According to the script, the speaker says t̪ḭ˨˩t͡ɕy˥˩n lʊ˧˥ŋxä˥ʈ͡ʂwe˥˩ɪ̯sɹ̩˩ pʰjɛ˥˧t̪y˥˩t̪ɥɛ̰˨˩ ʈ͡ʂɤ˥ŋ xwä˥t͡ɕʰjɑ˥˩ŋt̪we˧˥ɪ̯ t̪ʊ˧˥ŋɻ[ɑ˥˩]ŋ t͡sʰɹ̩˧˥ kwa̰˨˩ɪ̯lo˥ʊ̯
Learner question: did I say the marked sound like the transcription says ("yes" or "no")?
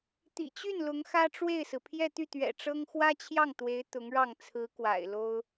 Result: yes